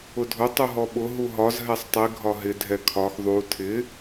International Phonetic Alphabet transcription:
ʊ dʱ ʊ tˤ u ɦ ɔ ɓ ʊ ɦ u ɦ ɒ z ɦ ɛ sˤ tˤ i ɡʱ ɒ ɦ ɪ dʱ ɛ kʰ ɒ x ðˤ u tʰ ɪ

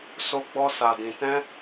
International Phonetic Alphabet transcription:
s o˧ ɡ͡b ɔ˧ s a˨ d ĩ˨ t ɛ̃˧

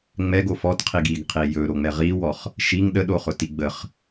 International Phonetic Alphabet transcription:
ŋ͡m ɛ ɡ o f ɔ t qʰ i ɡ i ɡ qʰ i j ɵ ɾ o ŋ͡m ɛ ʁ i w ɔ χ | ʃ i ŋ ɗ ə ɗ o χ ʊ t i ɡ͡b ə χ

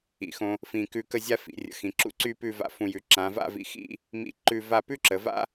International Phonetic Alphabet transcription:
ḭ˩˧ x õ˧ | f ĩ˧˩ k ʉ˧ k ə˥˧ zʲ a˥ f ḭ˩˧ rʲ ə̰˩˧ x ĩ˩˧ ǁ ṵ˥ ǀ y˥ p ʉ˥˧ v a̰˧ f ũ˧˩ j ʉ˩˧ ǁ ã˩˧ v a̰˥˧ v ḭ˧ x ḭ˥˧ | m ḭ˥˧ ǃ ʉ˥˧ v a˥˧ p ʉ˥ ǁ ə˩˧ v a̰˥

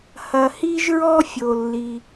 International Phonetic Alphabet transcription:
h ɐ˩ h i˥ ʒ ɹ ɔ˥ fʲ o˩ lː i˩

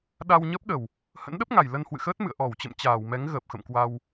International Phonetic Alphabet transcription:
ɗ a˧ w ɲ əː˦˥ p̚ ɗ ə˨˩ w | h ə̰˧˥ n ɗ ə˦˥ p̚ ŋ a˨˩ j l ə˧ n h w ɨ̰˧˨ x əː˦˥ t̚ m ɨ̰˧˨ ə̯ ʔ ɔ˧˩ w t͡ɕ ə̰˧˨ m t͡ɕ aː˧˩ w m ɛ˨˦ ŋ ɣ əː˨˩ p̚ x ə̰˧˨ m k w a˧ w

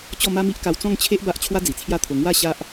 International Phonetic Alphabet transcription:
t͡ɕ ɔ˥˧ m a˦ m i˦ ʔ k a˧ w t͡s ɔ̃˥˧ ŋ t͡ɕʰ e˦ ʔ b a˦ ʔ t͡ɕʰ w a˦ d͡z i˨˩ t͡sʰ j a˥˧ t̪ʰ o˧ ŋ w a˥˧ ɕ a˦ ʔ

